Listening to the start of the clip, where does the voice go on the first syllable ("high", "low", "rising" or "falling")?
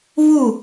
falling